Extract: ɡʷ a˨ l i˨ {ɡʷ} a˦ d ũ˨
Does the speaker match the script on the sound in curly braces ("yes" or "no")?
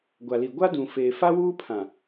yes